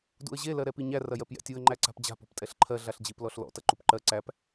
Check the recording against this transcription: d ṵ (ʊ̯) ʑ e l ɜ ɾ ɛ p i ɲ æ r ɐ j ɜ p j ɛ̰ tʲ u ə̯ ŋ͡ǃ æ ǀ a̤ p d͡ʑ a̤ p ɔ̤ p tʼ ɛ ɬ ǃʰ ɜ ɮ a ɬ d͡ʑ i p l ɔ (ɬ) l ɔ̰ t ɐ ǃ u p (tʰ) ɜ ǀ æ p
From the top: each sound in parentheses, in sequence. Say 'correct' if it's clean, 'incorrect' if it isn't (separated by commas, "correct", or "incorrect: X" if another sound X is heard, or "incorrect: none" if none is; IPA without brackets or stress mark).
incorrect: ə̯, correct, incorrect: ǃ